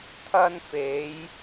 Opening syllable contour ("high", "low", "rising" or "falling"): high